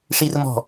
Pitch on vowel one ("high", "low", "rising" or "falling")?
high